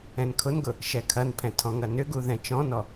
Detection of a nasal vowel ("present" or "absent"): present